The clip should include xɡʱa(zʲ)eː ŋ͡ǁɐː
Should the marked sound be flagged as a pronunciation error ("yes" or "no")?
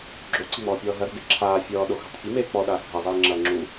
yes